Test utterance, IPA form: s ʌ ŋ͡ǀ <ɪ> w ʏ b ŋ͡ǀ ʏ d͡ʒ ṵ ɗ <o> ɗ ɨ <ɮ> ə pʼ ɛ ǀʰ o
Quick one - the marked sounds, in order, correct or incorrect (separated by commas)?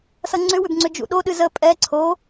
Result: incorrect, correct, incorrect